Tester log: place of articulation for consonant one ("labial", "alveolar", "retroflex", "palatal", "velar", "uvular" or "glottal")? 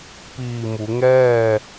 labial